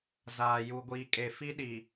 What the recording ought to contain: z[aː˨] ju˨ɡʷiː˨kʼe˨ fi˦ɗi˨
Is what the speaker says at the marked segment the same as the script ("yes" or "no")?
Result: yes